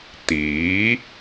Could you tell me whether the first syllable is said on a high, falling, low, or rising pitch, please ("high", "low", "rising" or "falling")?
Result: rising